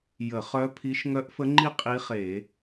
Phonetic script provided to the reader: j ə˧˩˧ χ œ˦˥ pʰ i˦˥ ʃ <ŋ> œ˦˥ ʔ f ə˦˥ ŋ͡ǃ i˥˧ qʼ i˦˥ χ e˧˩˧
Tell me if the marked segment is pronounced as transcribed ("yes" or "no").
yes